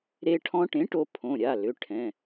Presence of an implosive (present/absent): absent